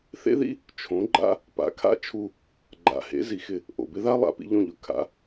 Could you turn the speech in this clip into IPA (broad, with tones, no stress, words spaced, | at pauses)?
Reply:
θḛ˥ðḭ˥ | t͡ʃʰõ˩˥ɡ͡ǃa̰˥ | pa̰˩˥kʰa̰˥t͡ʃʰu˧ | ɡ͡ǃa̰˩ hḛ˩˥zi˩xɪ˥˩ | ʔo̰˩bɪ˥ða˥ lˠa̰˩˥pḭ˧ʎõ˥˩ʎʊ˩˥ kʰa̰˩˥